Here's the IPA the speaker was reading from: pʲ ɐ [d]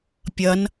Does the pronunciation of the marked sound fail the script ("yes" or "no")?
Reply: yes